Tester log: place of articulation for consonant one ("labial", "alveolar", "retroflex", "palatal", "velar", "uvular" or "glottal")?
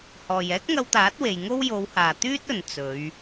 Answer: glottal